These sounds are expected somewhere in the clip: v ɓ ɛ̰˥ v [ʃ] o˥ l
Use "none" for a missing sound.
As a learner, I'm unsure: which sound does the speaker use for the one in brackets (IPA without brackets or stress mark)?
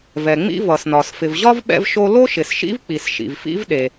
ʃ